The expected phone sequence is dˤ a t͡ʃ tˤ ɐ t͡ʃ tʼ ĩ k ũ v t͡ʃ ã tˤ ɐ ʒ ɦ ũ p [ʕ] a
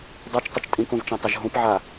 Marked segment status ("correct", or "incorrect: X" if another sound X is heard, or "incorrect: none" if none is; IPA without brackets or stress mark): correct